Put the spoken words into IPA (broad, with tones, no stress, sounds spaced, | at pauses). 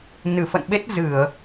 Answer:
n ɨ˧˩ f ə̰˧˨ n ɓ e˦˥ t̚ z ɨ˧˩˨ ə̯